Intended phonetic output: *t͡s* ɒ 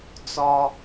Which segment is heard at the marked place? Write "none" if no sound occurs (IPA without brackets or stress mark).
t͡s